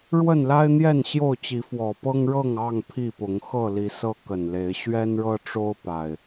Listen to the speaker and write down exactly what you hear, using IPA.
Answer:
ɻwə˥˨nla˦ɪ̯n̪jɛ˥˨n ɕjo˥˨ʊ̯t͡ɕi˨˦fwɔ˨˩ pɤ˦ŋɻɤ˥˨ŋɑ˥˨ŋ pʰi˥˨pʊ˨˦ŋ xɤ˥˨li˨˦ sɤ˦kə˨˩nle˨˦ɪ̯ ɕɥɛ˦nɻɤ˦ʈ͡ʂo˦ʊ̯ pa˨˩ɪ̯

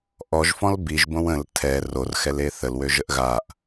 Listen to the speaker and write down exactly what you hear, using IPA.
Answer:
ʔɔʒfɔ̃l biʒbõw ə̃l tʰɛ rorxɛle θəlwøʒəʔ ɣaʔ

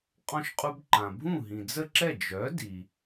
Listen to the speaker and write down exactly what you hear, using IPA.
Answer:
qʼɔ̃˧ʃqʼu˧bǃã˩ bʱũ˥˩ɦĩ˩d͡zə˥˩ǁɛ˥˩ d͡ʒœ˩˥di˩

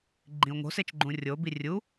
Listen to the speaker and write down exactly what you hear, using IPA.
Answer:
ɡ͡ǃĩo̯ŋo̤ set͡ʃɡ͡ǃũrʲo birʲu

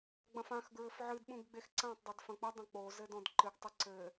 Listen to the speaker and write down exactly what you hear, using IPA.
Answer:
ɡ͡bɐ̃fãx ɡɹɘfʕɨd ɓũɡɡ͡bexǀãtˤ dˤedfɐ̃k͡pɐ dˤɐ̃k͡po zɘdɔ̃dǃɨɡ tˤɘǀɘ

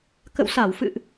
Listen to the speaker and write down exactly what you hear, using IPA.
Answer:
kə̰˧˨wsa˧˩wfɨ̰˧˨ʔ

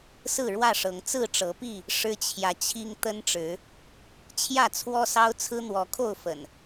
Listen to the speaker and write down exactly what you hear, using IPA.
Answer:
sɹ̩˥˨ɻwä˥˨ʂɤ˨˦ŋ t͡sɹ̩˥˨ʈ͡ʂɤ˨˦pi˥˨ | ʂɻ̩˦t͡ɕʰjä˨t͡ɕʰi˦ŋ t̪ə˦nʈ͡ʂɻ̩˨˦ | t͡ɕʰjä˥˨t͡sʰwɔ˦sɑ˦ʊ̯ t͡sʰɹ̩˦n̪wɔ˨˦ kʰo˥˨ʊ̯fə̰˨˩n

